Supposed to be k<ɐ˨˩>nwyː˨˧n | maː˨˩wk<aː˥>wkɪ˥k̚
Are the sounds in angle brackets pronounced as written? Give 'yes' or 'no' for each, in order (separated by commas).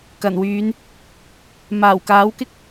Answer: yes, no